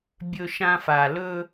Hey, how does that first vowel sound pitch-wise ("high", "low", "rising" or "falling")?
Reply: high